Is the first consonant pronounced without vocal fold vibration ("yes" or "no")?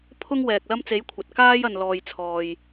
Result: yes